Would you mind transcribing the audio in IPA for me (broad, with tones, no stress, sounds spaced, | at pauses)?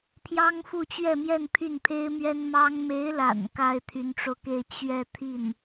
pʰ j ɑ˥ ŋ f u˥˧ t͡ɕ ɥ ɛ˥˧ m j ɛ˥˧ n pʰ y˥˩ n pʰ e˥ ɪ̯ m ɥ ɛ˥ n m ɑ˥ ŋ m e˧˥ ɪ̯ l a̰˨˩ n k a˥ ɪ̯ t̪ʰ y˧˥ n ʈ͡ʂ o˧ ʊ̯ k e˥˧ ɪ̯ t͡ɕ ɥ ɛ˥˧ t̪ʰ i˥˩ n